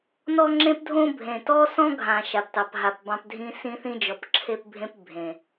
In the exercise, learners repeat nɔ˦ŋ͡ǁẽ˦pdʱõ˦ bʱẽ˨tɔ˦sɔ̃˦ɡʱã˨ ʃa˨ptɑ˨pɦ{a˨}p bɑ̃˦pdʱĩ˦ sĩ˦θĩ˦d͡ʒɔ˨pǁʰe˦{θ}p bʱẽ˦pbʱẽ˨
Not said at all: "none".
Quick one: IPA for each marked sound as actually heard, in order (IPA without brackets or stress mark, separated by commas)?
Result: a˨, none